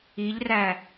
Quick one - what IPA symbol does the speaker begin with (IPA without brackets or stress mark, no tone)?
i